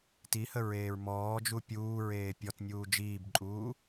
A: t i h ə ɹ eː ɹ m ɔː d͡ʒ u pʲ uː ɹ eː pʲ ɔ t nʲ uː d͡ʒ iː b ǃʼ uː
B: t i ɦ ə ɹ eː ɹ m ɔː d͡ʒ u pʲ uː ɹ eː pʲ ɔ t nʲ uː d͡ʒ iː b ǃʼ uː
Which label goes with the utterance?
A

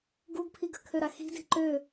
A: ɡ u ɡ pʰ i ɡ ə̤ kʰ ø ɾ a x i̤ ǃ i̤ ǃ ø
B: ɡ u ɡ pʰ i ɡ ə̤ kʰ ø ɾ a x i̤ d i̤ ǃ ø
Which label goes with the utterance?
B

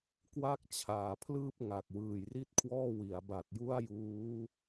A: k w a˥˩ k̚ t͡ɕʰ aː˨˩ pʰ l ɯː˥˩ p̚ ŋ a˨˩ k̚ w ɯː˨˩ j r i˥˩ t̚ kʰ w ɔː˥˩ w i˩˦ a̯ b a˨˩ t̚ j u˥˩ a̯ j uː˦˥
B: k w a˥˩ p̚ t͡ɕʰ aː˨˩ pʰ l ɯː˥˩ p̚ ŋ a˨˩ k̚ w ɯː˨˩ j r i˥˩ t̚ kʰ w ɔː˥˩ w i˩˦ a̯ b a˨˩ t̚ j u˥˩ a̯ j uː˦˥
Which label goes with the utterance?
A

